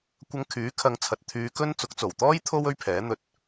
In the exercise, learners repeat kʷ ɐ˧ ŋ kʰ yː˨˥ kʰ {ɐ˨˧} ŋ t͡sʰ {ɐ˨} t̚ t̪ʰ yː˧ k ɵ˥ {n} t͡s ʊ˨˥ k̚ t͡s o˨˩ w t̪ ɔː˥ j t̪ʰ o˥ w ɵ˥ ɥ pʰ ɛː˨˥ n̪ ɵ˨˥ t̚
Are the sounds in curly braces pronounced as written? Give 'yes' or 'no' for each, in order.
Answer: yes, yes, yes

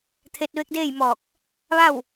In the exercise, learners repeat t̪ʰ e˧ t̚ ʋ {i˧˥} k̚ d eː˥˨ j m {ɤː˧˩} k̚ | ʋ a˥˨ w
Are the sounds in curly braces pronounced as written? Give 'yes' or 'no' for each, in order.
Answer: no, no

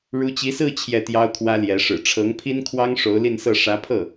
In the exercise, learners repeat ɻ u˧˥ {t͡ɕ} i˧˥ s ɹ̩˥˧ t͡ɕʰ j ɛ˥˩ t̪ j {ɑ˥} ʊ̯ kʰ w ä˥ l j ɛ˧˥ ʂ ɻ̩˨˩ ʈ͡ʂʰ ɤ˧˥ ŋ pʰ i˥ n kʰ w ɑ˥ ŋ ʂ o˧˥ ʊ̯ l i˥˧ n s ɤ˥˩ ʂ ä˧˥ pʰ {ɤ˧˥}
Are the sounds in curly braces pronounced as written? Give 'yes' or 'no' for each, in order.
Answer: yes, yes, no

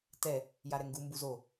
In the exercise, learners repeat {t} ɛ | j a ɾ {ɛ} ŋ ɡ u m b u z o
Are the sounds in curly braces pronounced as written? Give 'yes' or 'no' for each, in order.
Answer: yes, yes

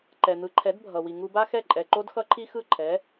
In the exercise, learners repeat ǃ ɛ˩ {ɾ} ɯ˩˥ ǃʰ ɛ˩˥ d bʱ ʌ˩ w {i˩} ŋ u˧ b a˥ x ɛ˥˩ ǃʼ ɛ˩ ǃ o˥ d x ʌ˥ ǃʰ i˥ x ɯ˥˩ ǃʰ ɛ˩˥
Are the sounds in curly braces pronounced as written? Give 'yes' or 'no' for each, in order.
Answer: no, yes

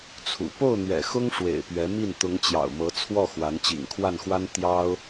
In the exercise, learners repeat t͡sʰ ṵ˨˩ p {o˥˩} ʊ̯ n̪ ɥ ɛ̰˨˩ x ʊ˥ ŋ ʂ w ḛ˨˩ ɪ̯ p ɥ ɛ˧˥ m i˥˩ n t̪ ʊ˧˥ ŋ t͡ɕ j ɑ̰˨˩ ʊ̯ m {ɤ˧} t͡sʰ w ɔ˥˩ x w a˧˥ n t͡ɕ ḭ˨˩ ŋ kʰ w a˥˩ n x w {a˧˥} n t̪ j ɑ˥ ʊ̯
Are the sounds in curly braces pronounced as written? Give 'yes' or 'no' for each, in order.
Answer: yes, no, no

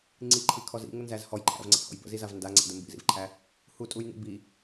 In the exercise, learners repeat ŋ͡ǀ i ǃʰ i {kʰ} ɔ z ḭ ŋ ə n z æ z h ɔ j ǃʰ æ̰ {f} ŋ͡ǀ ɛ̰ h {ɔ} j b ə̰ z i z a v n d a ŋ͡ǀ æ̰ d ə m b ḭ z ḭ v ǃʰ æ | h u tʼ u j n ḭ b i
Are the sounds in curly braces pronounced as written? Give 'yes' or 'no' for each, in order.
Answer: yes, no, no

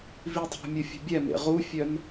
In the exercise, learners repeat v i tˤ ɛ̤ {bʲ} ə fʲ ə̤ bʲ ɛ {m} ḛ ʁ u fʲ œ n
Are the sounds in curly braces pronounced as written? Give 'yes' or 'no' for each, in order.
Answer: no, yes

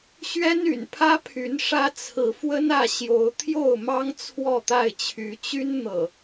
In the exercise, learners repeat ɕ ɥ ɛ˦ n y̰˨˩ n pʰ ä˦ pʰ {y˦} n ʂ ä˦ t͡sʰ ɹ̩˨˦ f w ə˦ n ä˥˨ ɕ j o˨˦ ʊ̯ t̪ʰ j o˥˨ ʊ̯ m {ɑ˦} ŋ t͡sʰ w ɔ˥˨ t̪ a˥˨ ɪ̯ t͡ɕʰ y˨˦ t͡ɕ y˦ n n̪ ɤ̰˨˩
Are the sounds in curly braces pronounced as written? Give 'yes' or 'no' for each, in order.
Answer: no, yes

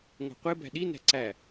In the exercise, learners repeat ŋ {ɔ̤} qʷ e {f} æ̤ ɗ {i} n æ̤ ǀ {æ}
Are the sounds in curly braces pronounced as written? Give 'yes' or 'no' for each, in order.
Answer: no, no, yes, yes

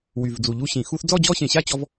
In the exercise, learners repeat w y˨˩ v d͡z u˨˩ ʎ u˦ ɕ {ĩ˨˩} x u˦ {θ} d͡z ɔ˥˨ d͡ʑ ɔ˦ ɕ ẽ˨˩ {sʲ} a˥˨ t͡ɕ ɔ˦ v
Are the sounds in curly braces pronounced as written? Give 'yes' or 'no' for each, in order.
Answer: yes, yes, no

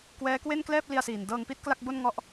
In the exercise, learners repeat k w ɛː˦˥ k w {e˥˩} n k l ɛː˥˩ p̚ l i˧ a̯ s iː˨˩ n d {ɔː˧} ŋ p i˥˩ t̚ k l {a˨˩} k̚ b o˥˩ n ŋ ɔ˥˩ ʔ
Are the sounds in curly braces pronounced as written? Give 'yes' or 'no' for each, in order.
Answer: yes, no, no

